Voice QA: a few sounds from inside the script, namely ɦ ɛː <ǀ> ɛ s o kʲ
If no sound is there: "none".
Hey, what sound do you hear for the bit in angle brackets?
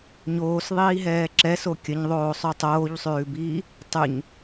ǁ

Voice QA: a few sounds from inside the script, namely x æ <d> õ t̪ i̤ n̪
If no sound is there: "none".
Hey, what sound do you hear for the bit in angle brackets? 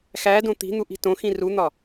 d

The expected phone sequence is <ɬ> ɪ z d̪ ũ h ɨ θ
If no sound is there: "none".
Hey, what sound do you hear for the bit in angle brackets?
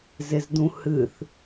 z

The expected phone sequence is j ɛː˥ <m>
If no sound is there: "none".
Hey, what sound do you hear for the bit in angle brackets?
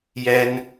n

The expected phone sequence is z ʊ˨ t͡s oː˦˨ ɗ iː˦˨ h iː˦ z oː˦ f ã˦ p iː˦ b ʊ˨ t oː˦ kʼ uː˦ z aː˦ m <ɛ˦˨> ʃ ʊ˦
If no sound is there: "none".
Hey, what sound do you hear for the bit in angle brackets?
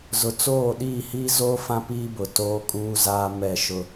ɛ˦˨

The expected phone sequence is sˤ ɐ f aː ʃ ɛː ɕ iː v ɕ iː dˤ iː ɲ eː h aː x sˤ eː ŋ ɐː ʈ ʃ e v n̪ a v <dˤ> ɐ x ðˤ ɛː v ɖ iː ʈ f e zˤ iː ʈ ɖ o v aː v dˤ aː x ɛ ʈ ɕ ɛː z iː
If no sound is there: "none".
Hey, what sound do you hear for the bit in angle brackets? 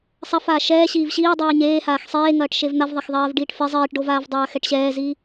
ðˤ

